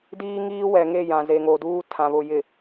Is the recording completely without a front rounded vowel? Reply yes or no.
yes